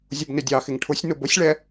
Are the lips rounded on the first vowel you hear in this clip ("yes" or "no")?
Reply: yes